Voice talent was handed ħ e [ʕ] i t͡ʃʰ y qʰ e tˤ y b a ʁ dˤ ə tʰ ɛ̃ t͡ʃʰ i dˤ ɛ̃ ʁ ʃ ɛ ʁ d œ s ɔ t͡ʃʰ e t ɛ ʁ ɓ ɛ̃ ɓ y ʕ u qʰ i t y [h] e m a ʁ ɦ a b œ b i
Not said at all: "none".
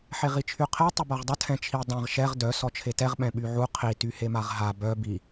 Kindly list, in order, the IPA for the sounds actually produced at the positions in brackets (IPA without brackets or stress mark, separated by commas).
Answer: ʁ, h